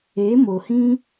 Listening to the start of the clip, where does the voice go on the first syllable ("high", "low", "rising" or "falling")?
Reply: rising